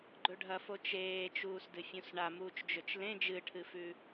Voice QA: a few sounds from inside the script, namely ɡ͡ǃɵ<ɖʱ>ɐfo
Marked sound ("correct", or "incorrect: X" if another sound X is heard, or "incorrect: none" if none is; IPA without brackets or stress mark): correct